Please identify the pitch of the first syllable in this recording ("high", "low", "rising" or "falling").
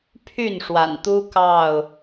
falling